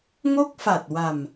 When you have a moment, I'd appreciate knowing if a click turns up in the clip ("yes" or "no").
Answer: no